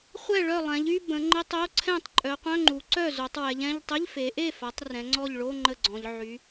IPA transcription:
χʷ ɛ˥˩ ɭ œ˥˩ lˠ ɛ̃˩˧ ʎ y˧˥˧ b ə̃˩˧ ŋ͡ǃ ə˧˥˧ tˤ o˧˥˧ ǀʰ ɛ̃˥˩ tˤ ǃʼ œ˩˧ qʷ œ̃˧˥˧ ŋ͡ǃ u˩˧ ǀ œ˥˩ z o˩˧ tˤ w ɛ˩˧ ʎ ɛ̃˧˥˧ ʎ tˤ ə˧˥˧ ʎ f e˩˧ ʔ e˥˩ f a˩˧ tˤ r ɛ̃˩˧ ŋ͡ǀ ɔ˥˩ ʎ ɭ o˧˥˧ ŋ͡ǃ ə˥˩ ɡ͡ǀ ɔ̃˩˧ ʎ ʕ y˩˧

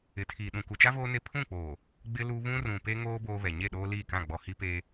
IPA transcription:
ɪ˨˦ tʰ iː˨ ɗ ũ˨ k u˨ t͡ʃ a˦ v oː˦ n e˦˨ pʰ ũ˦˨ k͡p oː˨ | ɡ͡b ɪ˦ l u˦ β ũ˦ r ũ˨ p e˦ ŋ oː˦ b oː˦ β ɛ˨ ɲ e˦˨ ɗ oː˦ l iː˦˨ k ã˦˨ ɡ͡b ɔ˨ h i˦ p eː˦

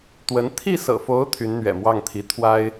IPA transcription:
t̪ w ə˧˥ n t̪ʰ i˥˩ s ɤ̰˨˩ f o˧˥ ʊ̯ t̪ʰ y˧˥ n n̪ ɥ ɛ̰˨˩ m w ɑ˥˩ ŋ t̪ʰ i˧˥ t̪ʰ w a˥ ɪ̯

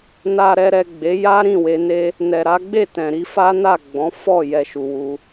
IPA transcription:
n a˨ ɾ ɛ˨ ɾ ɛ˨ ɡ͡b e˨˦ j a˦ ɾ ĩ˦˨ w e˧ n e˦ | n ɛ˨ ɾ a˨˦ ɡ͡b e˦˨ t ɛ̃˨ ɾ i˧ f a˦ n a˦˨ ɡ͡b ɔ̃˨˦ f ɔ˦˨ j ɛ˧ ʃ u˨ w u˧

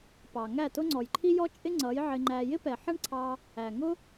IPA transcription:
p ɑ˨ ŋ æ˦˨ t ʊ˦ ŋ͡ǀ ɔ˨ j ǃʰ i˦ j ɔ˦ t͡ʃʼ ɪ˦ ŋ͡ǀ ʌ˨˦ j ʕ ɪ˧ ŋ͡ǃ æ˧ j ɪ˦ p ɛ˨ ħ ʌ˦ ɳ ǀʰ ɑ˧ | æ˨ ŋ ʊ˦

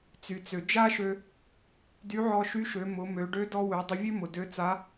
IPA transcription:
t͡s y˩ t͡s ø˩ d͡ʒ a˥ ʃ ø˧ | d y˧˥ ʕ ɔ˧ ʃ y˧˥ ʃ ø˩˧ m ʊ˩˧ m ø˩˧ ɖ ø˧˥ d ɔ˧ w ø˩˧ dˤ ʊ˧ vʲ ø˥ m ʊ˩ d ø˧˥ t͡s a˧˥

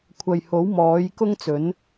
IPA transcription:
kʷʰ ɐ˨ j h o˨˥ w m ɔː˨˥ j k ʊ˥ ŋ t͡s ɵ˨˥ n

